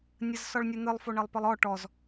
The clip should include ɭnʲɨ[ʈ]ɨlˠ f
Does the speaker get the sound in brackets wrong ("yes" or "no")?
yes